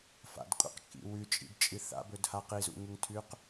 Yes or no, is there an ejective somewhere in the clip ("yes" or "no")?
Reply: yes